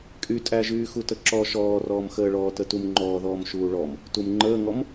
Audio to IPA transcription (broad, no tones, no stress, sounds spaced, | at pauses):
kʼ y tʼ æ ʒ yː x u t ə ǁ ɔ ʃ ɔː r ɔː m x əː ɭ ɔː t ə t u m ŋ͡ǃ ɔː ð ɔː m ʃ uː ɭ ɔ m | t u m ŋ͡ǃ əː ŋ ɔ m